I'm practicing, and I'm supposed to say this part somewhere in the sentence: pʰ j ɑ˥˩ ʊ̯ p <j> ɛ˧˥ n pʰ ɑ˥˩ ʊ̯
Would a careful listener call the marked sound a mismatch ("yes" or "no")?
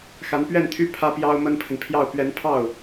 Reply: yes